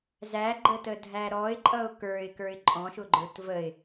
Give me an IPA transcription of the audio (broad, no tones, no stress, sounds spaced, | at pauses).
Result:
z æ ɡ͡ǃ ə t ə dʱ æ ɾ ɔ ɪ̯ ǃʼ ʌ ʊ̯ k ə˞ ɪ̯ k ə˞ ɪ̯ ǃʼ ɔ̃ ʃ ʊ ɡ͡ǃ ə˞ t v ə ɪ̯